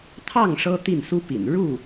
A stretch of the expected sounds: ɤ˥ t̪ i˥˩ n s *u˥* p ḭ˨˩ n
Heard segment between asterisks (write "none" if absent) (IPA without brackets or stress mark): u˥